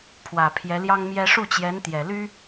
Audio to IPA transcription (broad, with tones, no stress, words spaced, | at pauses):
pʰwä˨˩pʰjɛ˧˥ljɑ˥ŋmjɛ˥ ʂu˥˩t͡ɕjɛ˧˥nt̪jɛ˨˩ly˥